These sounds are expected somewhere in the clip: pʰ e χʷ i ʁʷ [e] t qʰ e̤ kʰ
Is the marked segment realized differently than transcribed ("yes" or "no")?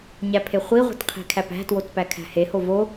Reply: yes